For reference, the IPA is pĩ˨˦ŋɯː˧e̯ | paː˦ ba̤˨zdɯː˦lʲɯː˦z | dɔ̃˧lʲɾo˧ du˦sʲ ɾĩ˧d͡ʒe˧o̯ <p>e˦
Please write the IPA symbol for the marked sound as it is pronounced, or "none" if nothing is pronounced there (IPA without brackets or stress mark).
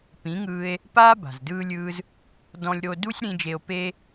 p